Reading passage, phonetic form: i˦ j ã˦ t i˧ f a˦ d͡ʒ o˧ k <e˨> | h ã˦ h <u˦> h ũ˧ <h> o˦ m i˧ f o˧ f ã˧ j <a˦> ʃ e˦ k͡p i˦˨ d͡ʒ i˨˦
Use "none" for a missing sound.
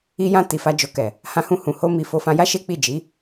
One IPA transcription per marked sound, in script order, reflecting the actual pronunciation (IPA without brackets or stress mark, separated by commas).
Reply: ɛ˨, ũ˦, h, a˦